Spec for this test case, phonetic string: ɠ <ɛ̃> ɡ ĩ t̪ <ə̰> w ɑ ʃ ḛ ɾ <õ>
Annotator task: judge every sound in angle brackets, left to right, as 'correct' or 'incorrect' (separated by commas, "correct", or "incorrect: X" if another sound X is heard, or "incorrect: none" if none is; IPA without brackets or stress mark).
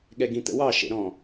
incorrect: ɛ, correct, incorrect: ɔ̃